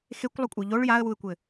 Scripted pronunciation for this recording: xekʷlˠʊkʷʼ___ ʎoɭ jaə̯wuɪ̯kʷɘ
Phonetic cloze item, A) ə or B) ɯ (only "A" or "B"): B